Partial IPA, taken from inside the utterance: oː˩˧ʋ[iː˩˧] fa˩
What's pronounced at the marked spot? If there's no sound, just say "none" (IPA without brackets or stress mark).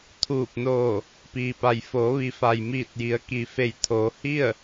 i˩˧